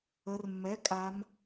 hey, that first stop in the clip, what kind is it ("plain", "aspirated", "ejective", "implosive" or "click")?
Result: ejective